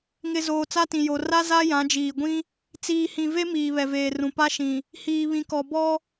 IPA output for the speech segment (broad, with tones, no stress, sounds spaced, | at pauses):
ŋ ɪ˨ z oː˨ t͡s a˦ t ĩ˨ j o˨ r a˦ z a˦ j ã˨˦ d͡ʒ iː˨ ɡʷ ĩ˦ | t͡s iː˨ h ĩ˨ v e˦ m iː˨ β ɛ˨ v eː˨ r ũ˨ p a˦ ʃ ĩ˨ | h iː˨ β ĩ˨ k ɔ˨ b ɔ˦